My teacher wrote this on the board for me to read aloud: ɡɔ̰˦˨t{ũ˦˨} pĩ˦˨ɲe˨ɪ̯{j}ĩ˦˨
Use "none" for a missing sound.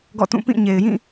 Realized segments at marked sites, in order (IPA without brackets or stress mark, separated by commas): ũ˦˨, j